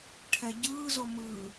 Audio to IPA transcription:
ʈʰ ɛ ɟ ɯ z o m ɯ

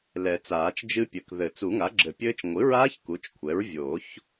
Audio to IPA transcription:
l ɛ˨˩˦ t͡s aː˨˩˦ t͡ʃ d͡ʒ ɨ˦˥ pʲ ɘ˩˥ k ð ɘ˨˩˦ t͡s u˨˩˦ ŋ a˩˥ ɡ͡ǁ ɘ˨˩˦ pʲ ɘː˦˥ t͡ʃ ŋʷ ɨ˩˥ ɹ aː˦˥ ç k u˩˥ t͡ʃ kʷʰ ɛ˩˥ ɹ vʲ o˨˩˦ ç

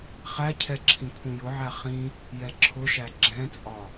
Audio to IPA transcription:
χ æ cʰ ɛ ǁʰ ĩ kʷʰ ĩ j ʊ ʕ æ χ ĩ | j ɛ ǁʰ ʊ ʃ æ ɡ͡ǁ ɛ̃ t͡sʼ ɒ

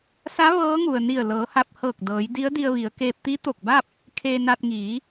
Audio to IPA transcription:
s a˧˥ ʋ ɤː˧˥ ŋ u˩ ə̯ n i˧˩ ə̯ l ɤː˩˧ h a˧ p̚ h ɤː˧˩ k̚ d ɤː˩˧ j d i˧˥ ə̯ d i˧ ə̯ ʋ i˩˧ ə̯ k eː˧ p̚ t̪ i˧˥ t̪ o˧˩ k̚ b a˥˨ p̚ | kʰ eː˧ n a˧ t̚ ŋ iː˩˧

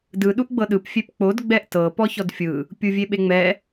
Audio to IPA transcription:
d ɯ ɗ u ʔ ɡ͡b ɤ ɗ ɯ p fʲ e p k͡p o d ɡ͡b ɛ ʔ t ɤ p ɔ ç ɔ d fʲ ɯ | pʲ u vʲ e ɓ e ŋ͡m ɛ

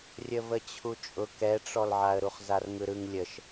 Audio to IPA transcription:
rʲ ə v ə t͡ɕʰ u t͡ʃʼ ʊ k ɛ ʈ͡ʂ ɔ l ʕ a ə̯ ɾ u χ z a r ŋ ɯ ɾ ɯ ŋ lʲ ə ʃ

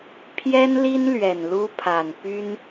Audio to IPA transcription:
pʰ j ɛ˥ n l i˥ n l ɥ ɛ˨˩ n l u˥ pʰ a˨˩ n p y˥ n

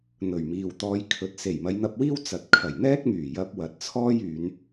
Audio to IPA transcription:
n̪ ɵ˨˩ ɥ m iː˨ w t̪ ɔː˧ j kʰ ɵ˨˥ t̚ s e˨˩ j m ɐ˨˧ j n̪ ɐ˧ p̚ w iː˥ w t͡s ɐ˨ t̚ kʰ ɐ˨˩ j n̪ ɛː˥ k̚ m yː˨˩ j ɐ˧ p̚ w ɐ˨ t̚ t͡sʰ ɔː˥ j yː˨˧ n

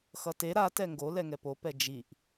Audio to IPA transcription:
x ʌ t e ɾ a t ɛ ŋ ɡ o l ɛ ŋ ɛ p o p ɛ d͡ʒ i ʔ

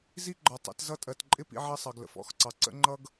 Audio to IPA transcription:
z i˦ ɡ͡ǃ ɒ˨ tˤ ə̰˨˦ t z ʌ˦ tʼ ɜ˨ t ǃʼ ɪ˦ p ḭ˦ ʕ ɜ˦ sˤ ɑ˨ ɡ l ə̰˨ f ɔ̰˦˨ x ǀ ɑ˨ ǀ ə̰˦ ŋ͡ǃ ʌ˦ ɡ

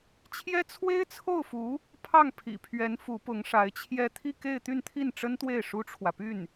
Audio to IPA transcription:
t͡ɕʰ j ɛ˥ t͡sʰ w e˥ ɪ̯ t͡sʰ o˥˩ ʊ̯ f u˧˥ | pʰ ɑ˥˩ ŋ pʰ ḭ˨˩ pʰ ɥ ɛ˧˥ n f u˧˥ p ʊ˧˥ ŋ ʂ a˧˥ ɪ̯ t͡ɕʰ j ɛ˥˧ t̪ʰ i˥˧ k e˥˧ ɪ̯ t̪ y˥˧ n t̪ʰ i˥˩ n ʈ͡ʂ ə˥ n t̪ w e˥˩ ɪ̯ ʂ u˥ ʈ͡ʂʰ w ä˨ p y˥˩ n

